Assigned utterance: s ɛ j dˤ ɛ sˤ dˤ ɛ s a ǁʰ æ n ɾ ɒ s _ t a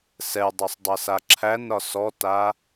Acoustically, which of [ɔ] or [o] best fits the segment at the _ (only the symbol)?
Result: ɔ